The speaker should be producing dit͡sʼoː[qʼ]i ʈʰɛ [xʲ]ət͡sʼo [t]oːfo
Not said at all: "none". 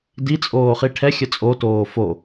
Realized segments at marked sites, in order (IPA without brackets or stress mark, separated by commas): χ, xʲ, t